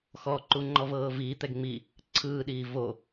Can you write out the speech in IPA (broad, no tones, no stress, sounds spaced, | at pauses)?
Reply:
x ɔ ǃ u ŋ͡ǃ ɔ v ɤː v iː t̪ ɛ ɡ ŋ͡m i | ǀʰ ɯː ɗ iː v o